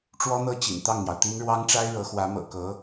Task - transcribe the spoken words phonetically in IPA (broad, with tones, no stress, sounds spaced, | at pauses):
ʈ͡ʂ w ɔ˥ n̪ ɤ˥˩ t͡ɕ ḭ˨˩ n t̪ ɑ˥˩ ŋ n̪ j ɑ˩ ʊ̯ t̪ i˥ n ɻ w ɑ˥ ŋ ʈ͡ʂ a˥ ɪ̯ ɻ ɤ˧˥ x w ä˧˥ m ɤ̰˨˩ k ɤ˧˥